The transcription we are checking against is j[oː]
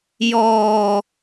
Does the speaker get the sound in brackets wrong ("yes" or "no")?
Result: yes